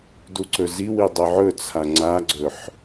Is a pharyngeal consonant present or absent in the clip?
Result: present